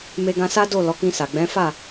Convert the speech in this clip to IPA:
m e˧ ɡ ã˧ s a˦ d o˦˨ l ɔ˨˦ k ĩ˧ s a˨ ɡ͡b ɛ̃˨˦ f a˦˨

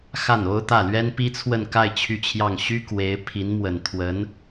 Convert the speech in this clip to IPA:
x a˥˩ n o˥ ʊ̯ t̪ ä˥˩ l ɥ ɛ˥ n p i˥ t͡sʰ w ə˥˧ n k a˥˧ ɪ̯ t͡ɕʰ y˥˧ t͡ɕʰ j ɑ˥˩ ŋ ɕ y˥ k w e˧˥ ɪ̯ pʰ i˧˥ n m w ə˨˩ n t̪ʰ w ə˧˥ n

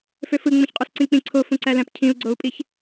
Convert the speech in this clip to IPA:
f ø f ɯ ŋ͡m ũ ç qʼ o s ǀ ĩ k͡p ĩ ǀʰ o f ũ ǀ æ l æ̃ p cʰ ĩ u̯ ɡ͡ǀ o u̯ pʼ i ç

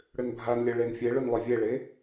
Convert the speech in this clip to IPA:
ɽ ʏ n bʱ a n lʲ ə ɭ e n fʲ e ɭ ʏ n lˠ ʏ vʲ e ɭ e

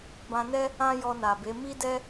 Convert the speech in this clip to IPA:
b ã˧ n ɛ˦ | ã˦ j ɔ˧ n a˨ b e˨˦ m i˦ d ɛ˦

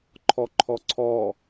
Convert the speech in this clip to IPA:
ǃʰ ɔ ǃʰ ɔ ǀʰ ɔ

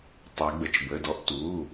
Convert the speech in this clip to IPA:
tˤ ɛ˩˧ ɡ͡b ə˩˧˩ t͡ʃ b ə˩˧˩ d ɔ˧ ʔ t u˩˧˩

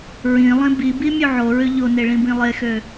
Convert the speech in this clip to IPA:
ɹ ĩ lˠ ĩ b i b i mʲ u ʕ o ɹ ø ʎ o n e ɭ ĩ b ĩ lˠ e x ø

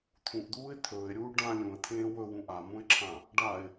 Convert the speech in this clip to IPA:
t̪ʰ ũ ʔ d̪ uː ɪ̯ t̪ʰ ɵː ɪ̯ ɾʲ uː ɖ ã lʲ ũ ə̯ t̪ʰ ẽː w ɵ w ũ ʔ a m ũ ɪ̯ ǁʰ ã | ɖ a ɪ̯

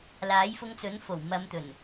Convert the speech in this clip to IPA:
l aː˨˥ j f ʊ˧ ŋ t͡s ɵ˨˥ n f o˨˩ w m ɐ˨˧ m t̪ ɵ˨˩ n

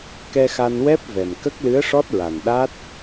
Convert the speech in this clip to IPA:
k ɛ˧ x a˧ n w ɛ˦˥ p̚ v ɛ˨˩ m k ə˦˥ k̚ l ɨ˧˥ ə̯ ʂ ɔ˦˥ t̚ ɹ a˨˩ n ɗ a˦˥ t̚

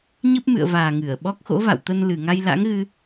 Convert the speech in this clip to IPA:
ɲ ɨ˦˥ p̚ m ɨ̰˧˨ ə̯ v aː˨˩ ŋ ɨ˧˩ ə̯ ɓ ɔ˦˥ k̚ x o̰˧˥ v a̰˧˨ w t̪ ə˧ n l ɨ˨˩ ŋ a˧ j l a̰˧˥ ŋ ɣ ɨ˧

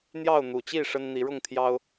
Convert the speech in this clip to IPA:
n̪ j ɑ˥˨ ʊ̯ n̪ u˨˩ t͡ɕ i˥˨ ʂ ə˦ n n̪ i˨˦ ɻ ʊ˥˨ ŋ t̪ʰ j ɑ˦ ʊ̯

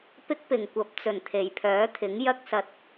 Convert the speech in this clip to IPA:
p ɪ˥ k̚ p ɪ˨˩ ŋ kʷ ɐ˨˥ p̚ t͡s ɵ˨˩ n t̪ʰ e˨˩ j pʰ œː˨˥ t̪ʰ ɪ˨˥ ŋ j ɐ˥ k̚ s ɐ˧ t̚

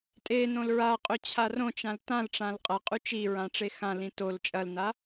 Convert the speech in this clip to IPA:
tʼ e n õ l ɹ a qʼ ɵ t͡ɕʰ a r õ t͡ʃ ã l t ã l ʈ͡ʂ ã l qʼ ɐ qʼ ʉ t͡ʃ i ɹ ã ʈ͡ʂ e x ã l ĩ t o l t͡ʃʼ ɐ l n a

